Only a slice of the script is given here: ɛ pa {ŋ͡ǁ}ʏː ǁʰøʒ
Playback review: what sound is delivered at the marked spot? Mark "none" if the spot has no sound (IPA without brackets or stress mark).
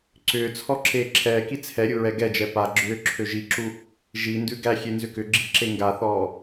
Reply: ɡ͡ǁ